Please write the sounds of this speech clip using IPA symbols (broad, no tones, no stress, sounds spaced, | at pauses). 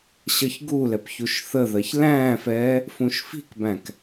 ɕ ʌ ç ɡ u l ɛ p ç u ʃ θ ə ð ɜ ç l æ̃ː f ɛː | f ũ ʃ f i̤ k b æ̃ k